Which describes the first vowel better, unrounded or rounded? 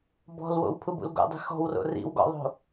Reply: rounded